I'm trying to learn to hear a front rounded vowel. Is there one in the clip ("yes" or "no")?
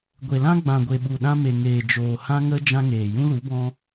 no